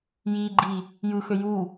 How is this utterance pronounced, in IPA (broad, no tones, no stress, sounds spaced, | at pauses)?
j i ɡ͡ǃ i | j ɯ x ø j u